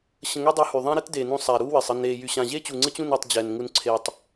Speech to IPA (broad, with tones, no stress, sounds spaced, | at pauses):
ɕ ə̃˧ ŋ y˦ dˤ u˧ h y˨ ðˤ ã˦ ɾ ɘ˦ t d eː˨ n ũ˧ sˤ a˨ ɾ uː˦ w ɘ˨ sˤ ə˧ n eː˧ j y˨ ɕ ã˨ ʑ e˦ t͡ɕ u˨ ŋ͡ǀ ɘ˦ t͡ɕ ũ˦˨ n əː˧ tˤ d͡ʑ ɛ˨ n ŋ u˧ n ǀʰ eː˨ tˤ